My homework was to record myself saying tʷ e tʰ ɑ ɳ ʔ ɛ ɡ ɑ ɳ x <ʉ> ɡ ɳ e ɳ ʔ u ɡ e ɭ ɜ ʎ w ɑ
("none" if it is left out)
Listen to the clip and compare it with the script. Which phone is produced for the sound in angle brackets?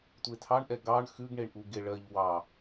ʉ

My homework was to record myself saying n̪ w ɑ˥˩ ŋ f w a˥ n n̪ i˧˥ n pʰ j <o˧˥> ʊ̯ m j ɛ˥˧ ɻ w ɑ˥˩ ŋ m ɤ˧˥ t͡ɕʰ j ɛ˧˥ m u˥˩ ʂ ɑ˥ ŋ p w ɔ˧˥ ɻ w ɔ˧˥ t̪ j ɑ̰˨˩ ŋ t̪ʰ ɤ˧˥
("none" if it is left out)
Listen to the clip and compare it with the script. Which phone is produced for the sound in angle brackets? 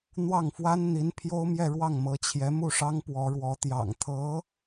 o˥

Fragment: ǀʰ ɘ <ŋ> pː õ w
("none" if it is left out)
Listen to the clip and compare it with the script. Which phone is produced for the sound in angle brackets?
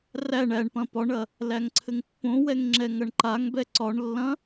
ŋ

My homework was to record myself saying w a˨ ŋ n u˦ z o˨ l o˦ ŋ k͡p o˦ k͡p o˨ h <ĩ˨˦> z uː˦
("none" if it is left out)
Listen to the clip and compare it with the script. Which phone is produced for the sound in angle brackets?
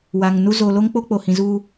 ĩ˨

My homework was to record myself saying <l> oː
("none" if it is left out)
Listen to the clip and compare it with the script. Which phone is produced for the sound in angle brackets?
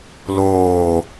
l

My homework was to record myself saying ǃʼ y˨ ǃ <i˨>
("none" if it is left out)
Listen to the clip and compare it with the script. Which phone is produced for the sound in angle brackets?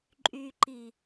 i˨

